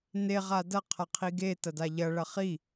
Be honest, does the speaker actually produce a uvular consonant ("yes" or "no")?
yes